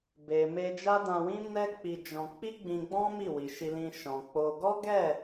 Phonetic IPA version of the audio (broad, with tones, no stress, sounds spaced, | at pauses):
b e˨ m e˧ d͡ʒ a˦ d ã˧ w ĩ˦ n ɛ˦ k͡p i˧ d͡ʒ ɔ̃˧ k͡p i˦ ɡ͡b ĩ˧ ɡ͡b ɔ̃˦ m i˦˨ w i˨ ʃ i˧ l ĩ˧ ʃ ɔ̃˨ k͡p o˧ ɡ ɔ˦ ɡ ɛ˦˨